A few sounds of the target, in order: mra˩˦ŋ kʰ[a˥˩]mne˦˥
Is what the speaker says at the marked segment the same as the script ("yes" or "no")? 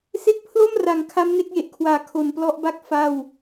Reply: no